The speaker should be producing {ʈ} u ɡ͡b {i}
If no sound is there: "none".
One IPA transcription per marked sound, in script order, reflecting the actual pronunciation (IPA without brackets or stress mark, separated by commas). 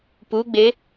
p, e